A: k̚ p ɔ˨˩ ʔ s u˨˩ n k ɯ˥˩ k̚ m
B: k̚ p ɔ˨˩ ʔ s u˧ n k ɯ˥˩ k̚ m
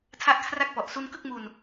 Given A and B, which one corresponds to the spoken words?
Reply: B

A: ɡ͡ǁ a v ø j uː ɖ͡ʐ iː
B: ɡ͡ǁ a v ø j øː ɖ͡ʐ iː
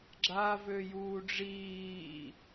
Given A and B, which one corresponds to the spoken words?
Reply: A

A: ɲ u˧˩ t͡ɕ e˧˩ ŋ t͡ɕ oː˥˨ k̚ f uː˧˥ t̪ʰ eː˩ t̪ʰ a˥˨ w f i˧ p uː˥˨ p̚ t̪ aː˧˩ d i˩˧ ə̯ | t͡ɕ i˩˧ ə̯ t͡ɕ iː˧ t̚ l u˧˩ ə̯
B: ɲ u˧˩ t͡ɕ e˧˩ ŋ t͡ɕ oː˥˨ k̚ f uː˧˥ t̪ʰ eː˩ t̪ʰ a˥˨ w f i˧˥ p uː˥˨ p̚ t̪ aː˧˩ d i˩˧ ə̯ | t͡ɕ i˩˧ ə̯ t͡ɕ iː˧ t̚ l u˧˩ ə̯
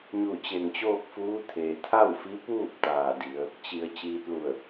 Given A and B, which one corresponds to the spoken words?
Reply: B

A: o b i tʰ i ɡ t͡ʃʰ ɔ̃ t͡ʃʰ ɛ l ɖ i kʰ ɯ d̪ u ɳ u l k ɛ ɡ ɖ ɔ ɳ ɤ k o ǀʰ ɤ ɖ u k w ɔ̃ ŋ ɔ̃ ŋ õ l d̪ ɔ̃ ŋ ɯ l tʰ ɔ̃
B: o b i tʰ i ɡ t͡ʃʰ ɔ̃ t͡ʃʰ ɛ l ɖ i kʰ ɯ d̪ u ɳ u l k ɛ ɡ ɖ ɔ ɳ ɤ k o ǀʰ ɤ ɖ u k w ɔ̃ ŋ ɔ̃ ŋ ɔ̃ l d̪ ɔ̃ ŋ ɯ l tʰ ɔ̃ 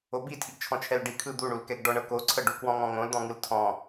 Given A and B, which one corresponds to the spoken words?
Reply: A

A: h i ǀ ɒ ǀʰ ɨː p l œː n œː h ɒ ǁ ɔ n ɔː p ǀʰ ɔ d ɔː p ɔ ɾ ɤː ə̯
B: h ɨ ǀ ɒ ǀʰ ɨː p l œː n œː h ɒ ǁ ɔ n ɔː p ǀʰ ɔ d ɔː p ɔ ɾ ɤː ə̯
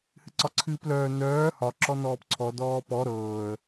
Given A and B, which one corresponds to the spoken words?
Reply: B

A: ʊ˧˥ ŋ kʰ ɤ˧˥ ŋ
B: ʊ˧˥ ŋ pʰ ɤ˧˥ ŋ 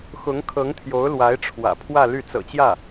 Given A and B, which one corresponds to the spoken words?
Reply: A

